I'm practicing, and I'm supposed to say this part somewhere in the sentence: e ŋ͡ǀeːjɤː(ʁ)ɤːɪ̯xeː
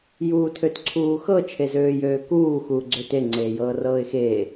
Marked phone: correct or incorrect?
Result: incorrect